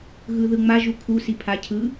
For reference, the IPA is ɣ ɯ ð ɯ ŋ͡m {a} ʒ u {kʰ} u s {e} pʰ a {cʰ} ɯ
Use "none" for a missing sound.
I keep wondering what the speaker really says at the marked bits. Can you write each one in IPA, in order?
a, kʰ, i, cʰ

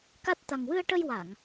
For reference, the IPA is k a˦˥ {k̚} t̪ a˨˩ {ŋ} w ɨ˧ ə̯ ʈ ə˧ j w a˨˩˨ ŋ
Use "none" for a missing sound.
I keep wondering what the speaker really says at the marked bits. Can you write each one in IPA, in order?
t̚, ŋ

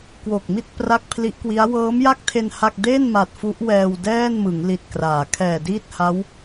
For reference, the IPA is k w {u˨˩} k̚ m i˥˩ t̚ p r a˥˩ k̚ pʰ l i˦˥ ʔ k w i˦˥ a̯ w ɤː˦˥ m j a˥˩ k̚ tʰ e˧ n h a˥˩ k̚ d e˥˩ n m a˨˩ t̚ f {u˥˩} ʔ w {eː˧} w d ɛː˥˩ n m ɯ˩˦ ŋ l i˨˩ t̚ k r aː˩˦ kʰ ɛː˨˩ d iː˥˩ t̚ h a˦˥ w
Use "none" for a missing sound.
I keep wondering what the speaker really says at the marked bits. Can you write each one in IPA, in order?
o˨˩, u˦˥, ɛː˧

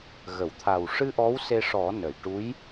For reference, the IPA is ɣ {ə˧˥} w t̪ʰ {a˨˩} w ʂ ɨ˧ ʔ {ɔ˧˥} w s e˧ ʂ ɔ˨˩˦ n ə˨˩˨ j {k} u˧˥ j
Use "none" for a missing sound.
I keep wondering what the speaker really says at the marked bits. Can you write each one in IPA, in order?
ə˨˩˨, a˨˩, ɔ˧˥, ʈ

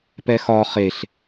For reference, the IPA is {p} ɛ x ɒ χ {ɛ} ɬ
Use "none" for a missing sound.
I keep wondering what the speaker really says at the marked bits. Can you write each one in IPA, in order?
p, e

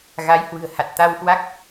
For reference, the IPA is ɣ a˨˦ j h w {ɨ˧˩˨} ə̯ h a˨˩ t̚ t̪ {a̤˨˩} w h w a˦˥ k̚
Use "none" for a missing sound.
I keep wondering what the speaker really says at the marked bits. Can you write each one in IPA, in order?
ɨ̤˨˩, a˧

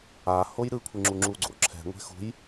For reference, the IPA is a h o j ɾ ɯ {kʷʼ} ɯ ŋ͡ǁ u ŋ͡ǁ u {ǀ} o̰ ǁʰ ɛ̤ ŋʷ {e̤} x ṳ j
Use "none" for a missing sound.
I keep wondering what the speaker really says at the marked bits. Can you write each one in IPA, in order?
kʷʰ, ɡ͡ǀ, ɛ̤

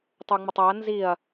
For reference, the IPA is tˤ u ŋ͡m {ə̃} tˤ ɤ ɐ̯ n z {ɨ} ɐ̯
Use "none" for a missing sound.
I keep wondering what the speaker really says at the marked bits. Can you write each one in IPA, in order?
ə, i

